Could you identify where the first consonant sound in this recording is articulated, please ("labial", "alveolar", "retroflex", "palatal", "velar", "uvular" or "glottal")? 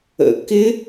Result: velar